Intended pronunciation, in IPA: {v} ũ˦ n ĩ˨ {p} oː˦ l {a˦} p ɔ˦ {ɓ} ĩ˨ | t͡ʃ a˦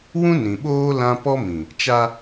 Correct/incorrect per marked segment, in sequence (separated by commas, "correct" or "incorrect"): incorrect, incorrect, incorrect, incorrect